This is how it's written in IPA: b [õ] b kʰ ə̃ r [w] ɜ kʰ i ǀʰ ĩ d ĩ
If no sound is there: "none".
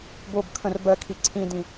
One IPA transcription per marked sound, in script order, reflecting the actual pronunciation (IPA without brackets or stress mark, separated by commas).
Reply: o, b